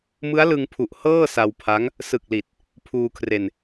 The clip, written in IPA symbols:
mɯ˦˥a̯lɯ˧ŋpʰu˨˩ʔ hɤː˥˩sa˧wpʰa˦˥ŋ | sɯ˨˩k̚li˨˩t̚ | pʰuː˧kʰre˧n

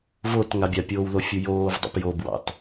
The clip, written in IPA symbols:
vot ŋabʲapʲoːw ðofʲujoːvdˤo̰p jobwɑ̰t

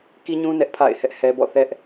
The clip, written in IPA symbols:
ki˦ɲũ˦ nɛ˦ʔpʰa̰˦˨ɪ̯hɛ˦ʔhɛ˦ bɔ̰˦˨ θɛ˦ʔ

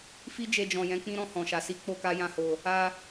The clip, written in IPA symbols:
fi˦d͡ʒe˧d͡ʒɔ̃˨jɛ̃˨˦ k͡pĩ˦ɾɔ̃˦˨ hɔ̃˨ʃa˨ si˨˦ k͡po˦ka˦jã˦ho˧ | a˧

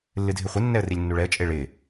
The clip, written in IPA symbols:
lːɨdʱɪχʷɪ nːɛə̯rilʲnːuɭɛə̯ t͡ʃʼeɭɪ

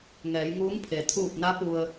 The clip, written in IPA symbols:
ŋɛː˩˧jŋuː˧˥ŋpʰe˩ t̪ʰuː˧˩p̚na˧˥ pu˧ə̯

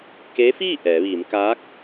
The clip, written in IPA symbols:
ke˧˥fiː˥˨ ʔɛː˩˧ʋiː˩˧m kaː˧˥k̚

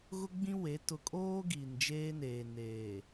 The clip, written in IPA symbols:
ɣʊ˦ɡ͡bĩ˦we˨˦ tʊ˨kʼoː˦ ɡiː˨nd͡ʒeː˦neː˨ neː˨

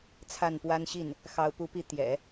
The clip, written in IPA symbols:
t͡sʰa˥˩npwa˥nɕi˥˩n | xɑ˧˥ʊ̯pu˧˥pi˧˥ t̪jɛ̰˨˩˦

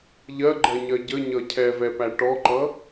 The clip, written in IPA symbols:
ʎɜɡ͡ǃɜɲɜ ɟəɲʌ cʰɛvɛpæ ʈɔǃʌ

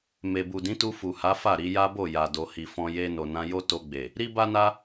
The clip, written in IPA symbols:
me˨bu˨dĩ˨˦tu˧ fu˨ha˨˦fa˦˨ ɾi˧ja˦bo˦˨ ja˨do˨hi˨fɔ̃˧ je˧ no˨nã˧ jo˦ to˧ɡ͡be˨ | ɾi˦ba˦na˦

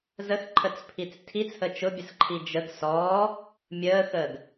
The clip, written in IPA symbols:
zəxǃʰət͡spʰit͡s tʰit͡shə t͡ʃʊbʲəsǃʰi d͡ʒəɡ sɔː | mʲəːxəːɡ

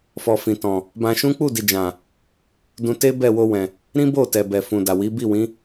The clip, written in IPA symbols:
fɔ˧fĩ˨tɔ̃˨ | bã˧ʃũ˦ k͡pu˦˨di˨d͡ʒã˨ | dũ˧te˦ bɛ˦˨wo˧wɛ̃˨ | ɾĩ˦bo˦˨tɛ˨bɛ˨ fũ˨da˨ wi˨˦bi˦˨ wĩ˨˦

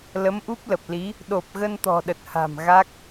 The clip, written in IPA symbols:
lə˨˦mʔu˦˥p̚lə˨˩p̚li˨˦ | ɗo˨˩p̚ ɣə˧nt̪ɔ̤˨˩ɗə˨˩t̚ha̤˨˩m ɣa˦˥k̚

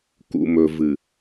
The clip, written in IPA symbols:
kṵ˨mɵ˨ vɨ˨

